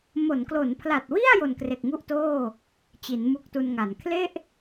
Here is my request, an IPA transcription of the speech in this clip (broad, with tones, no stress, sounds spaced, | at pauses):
m o˩˦ n k l o˩˦ n pʰ l a˨˩ t̚ w i˥˩ a̯ j o˨˩ n k r e˨˩ k̚ ŋ u˥˩ ʔ t oː˥˩ | t͡ɕ i˩˦ n m u˦˥ k̚ t u˧ n ŋ a˩˦ n kʰ l e˥˩ ʔ